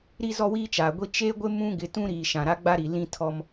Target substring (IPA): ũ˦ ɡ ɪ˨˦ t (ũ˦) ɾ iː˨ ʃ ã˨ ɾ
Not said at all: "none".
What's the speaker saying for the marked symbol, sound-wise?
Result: ũ˦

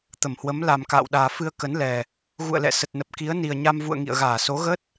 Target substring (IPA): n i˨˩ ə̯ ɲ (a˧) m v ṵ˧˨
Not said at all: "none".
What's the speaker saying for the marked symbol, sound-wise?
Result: a˧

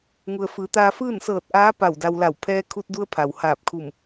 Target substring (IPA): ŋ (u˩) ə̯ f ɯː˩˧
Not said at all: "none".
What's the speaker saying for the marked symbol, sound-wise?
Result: u˩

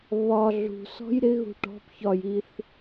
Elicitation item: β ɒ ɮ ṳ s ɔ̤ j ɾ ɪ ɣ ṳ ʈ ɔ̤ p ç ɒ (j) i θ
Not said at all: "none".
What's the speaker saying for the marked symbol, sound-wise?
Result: j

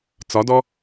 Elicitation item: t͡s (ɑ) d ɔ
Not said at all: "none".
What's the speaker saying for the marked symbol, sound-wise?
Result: ɒ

